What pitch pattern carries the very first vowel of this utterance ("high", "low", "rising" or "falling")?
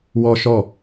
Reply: high